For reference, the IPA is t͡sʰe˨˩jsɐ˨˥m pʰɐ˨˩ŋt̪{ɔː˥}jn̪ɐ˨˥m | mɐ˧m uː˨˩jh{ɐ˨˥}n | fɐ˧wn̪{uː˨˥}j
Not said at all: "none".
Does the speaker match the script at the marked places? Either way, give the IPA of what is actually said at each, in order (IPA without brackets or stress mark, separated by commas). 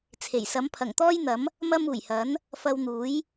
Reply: ɔː˥, ɐ˨˥, uː˨˥